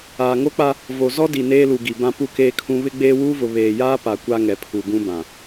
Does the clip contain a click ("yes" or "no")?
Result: no